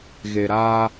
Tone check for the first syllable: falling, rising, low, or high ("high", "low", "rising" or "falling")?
low